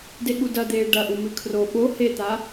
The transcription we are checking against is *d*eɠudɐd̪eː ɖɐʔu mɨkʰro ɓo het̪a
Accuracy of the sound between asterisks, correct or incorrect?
correct